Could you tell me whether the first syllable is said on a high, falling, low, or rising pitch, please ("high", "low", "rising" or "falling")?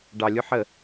low